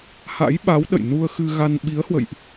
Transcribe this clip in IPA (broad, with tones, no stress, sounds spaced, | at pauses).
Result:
h a̰˧˥ j ɓ a˨˦ w ɗ ə̰˧˨ j n u˧ ə̯ x ɨ˧ ɣ a˧ n ɓ i˨˦ ə̯ h w ə̰˧˨ j ʔ